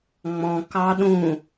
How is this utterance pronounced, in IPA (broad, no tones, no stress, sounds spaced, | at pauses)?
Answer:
ŋ͡m ɔ̃ k ɑ ɗ ũ